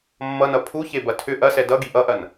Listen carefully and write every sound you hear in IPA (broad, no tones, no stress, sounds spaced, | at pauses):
mː ʌ n ʌ pʰ u ç e b ɐ tʰ ʏ ʔ ɐ s ɛ d ʌ ɡ i ʔ ʌ ʔ ɐ n